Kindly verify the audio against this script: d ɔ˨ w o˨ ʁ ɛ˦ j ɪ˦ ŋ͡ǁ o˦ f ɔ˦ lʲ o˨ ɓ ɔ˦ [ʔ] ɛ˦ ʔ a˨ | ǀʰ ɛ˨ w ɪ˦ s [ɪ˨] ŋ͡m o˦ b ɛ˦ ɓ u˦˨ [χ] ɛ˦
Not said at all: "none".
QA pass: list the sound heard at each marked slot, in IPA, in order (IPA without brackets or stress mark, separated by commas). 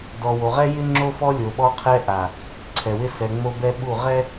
qʰ, ɛ˨, ʁ